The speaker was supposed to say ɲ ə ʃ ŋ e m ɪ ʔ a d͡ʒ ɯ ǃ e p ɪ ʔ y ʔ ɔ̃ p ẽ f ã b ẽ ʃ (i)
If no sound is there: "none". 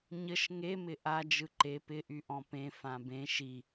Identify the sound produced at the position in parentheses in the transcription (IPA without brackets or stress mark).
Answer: i